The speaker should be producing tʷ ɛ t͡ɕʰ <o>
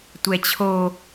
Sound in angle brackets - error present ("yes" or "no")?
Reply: no